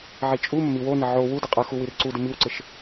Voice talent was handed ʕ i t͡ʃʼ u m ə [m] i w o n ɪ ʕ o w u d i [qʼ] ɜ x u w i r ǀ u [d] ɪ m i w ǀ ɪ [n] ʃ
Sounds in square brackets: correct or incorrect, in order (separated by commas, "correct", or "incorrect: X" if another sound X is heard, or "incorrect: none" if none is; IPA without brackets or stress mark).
correct, correct, correct, incorrect: none